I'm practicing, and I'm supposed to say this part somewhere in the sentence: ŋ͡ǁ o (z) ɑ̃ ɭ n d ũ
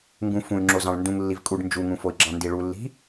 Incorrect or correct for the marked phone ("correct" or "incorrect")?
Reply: correct